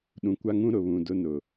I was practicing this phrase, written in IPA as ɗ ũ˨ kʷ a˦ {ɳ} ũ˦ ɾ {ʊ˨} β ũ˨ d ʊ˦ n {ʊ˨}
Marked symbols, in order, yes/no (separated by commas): no, yes, yes